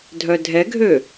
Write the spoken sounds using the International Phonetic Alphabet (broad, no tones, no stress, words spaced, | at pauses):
dʱœdʱɛɡʱø